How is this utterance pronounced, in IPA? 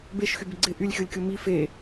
b e ʃ x y b ɪ ɡ͡ǀ ɪ ʔ y lʲ xʲ o lʲ kʲ o m i f e

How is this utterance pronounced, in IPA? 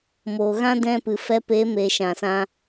m oː˨ ɣ ã˦ d ɛ̃˧ p ɨ˨ f ɛ˧ p e˨˦ m eː˨ ʃ ã˨ s ã˧

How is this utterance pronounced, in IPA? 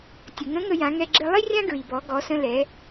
tʲ ə˩ ŋ ə̃˧˥ ŋ ə˧ j ã˩˧ ŋ ɛ˧ ɡ͡ǁ ɘ˧ lˠ i˥ rʲ ã˥ ɡ ɹ i˩ b ɔ˩˧ ɡ ɔ˩˧ s ə̃˧ l ɛ˩˧

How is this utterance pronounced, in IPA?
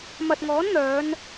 m ɐ˨ t̚ ŋ ɔː˨˥ n n̪ œː˨˧ n

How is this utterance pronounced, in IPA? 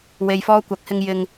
w e˨ j f ɔː˧ kʷ ɐ˨˥ k̚ h ɪ˧ ŋ j ɪ˧ ŋ

